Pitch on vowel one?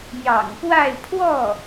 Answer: low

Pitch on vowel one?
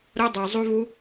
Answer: high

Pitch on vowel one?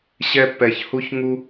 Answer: high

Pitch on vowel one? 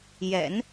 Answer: low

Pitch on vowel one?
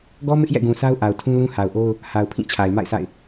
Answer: high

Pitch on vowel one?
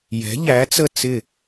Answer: rising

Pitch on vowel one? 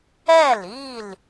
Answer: falling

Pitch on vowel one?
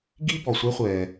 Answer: high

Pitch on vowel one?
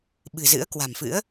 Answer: low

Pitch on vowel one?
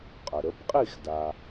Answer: low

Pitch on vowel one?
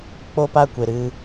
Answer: high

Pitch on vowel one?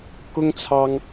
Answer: high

